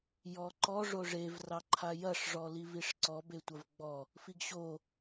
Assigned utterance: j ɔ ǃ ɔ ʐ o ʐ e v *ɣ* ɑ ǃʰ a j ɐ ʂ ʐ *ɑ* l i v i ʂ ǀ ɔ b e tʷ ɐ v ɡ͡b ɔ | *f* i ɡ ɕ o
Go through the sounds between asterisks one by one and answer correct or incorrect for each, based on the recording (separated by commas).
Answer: incorrect, incorrect, correct